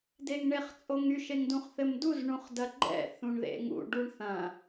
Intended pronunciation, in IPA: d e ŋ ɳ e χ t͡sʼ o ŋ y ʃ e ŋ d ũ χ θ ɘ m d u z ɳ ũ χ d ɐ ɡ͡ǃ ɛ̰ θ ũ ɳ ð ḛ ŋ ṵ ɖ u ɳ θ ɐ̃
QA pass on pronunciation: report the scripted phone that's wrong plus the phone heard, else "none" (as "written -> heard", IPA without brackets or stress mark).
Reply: none